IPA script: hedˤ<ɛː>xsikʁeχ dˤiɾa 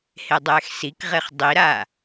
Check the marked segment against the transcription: correct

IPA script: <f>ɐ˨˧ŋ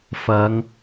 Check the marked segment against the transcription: correct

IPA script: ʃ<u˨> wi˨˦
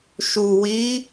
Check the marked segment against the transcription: correct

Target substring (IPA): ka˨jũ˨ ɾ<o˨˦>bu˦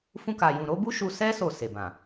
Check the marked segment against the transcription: correct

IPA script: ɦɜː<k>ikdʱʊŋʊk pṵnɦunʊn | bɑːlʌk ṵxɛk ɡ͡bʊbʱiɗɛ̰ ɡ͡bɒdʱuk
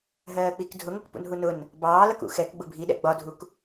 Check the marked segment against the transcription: incorrect: k͡p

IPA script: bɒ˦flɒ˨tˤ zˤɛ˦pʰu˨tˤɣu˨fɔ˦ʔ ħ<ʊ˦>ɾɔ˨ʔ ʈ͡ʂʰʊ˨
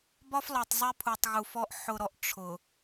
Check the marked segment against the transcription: incorrect: ʊ˨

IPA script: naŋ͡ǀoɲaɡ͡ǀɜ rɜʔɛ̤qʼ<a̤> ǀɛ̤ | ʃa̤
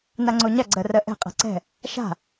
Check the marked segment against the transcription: correct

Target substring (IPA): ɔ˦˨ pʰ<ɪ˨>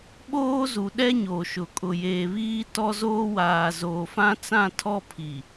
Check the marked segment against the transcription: incorrect: i˨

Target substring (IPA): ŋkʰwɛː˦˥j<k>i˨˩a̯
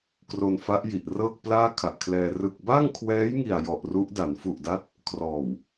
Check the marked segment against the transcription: incorrect: ŋ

